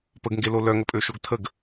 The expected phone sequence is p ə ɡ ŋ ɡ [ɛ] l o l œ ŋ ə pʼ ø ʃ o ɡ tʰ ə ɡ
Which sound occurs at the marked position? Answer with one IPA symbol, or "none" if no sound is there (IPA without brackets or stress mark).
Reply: e